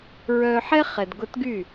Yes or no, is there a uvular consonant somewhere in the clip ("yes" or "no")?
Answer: yes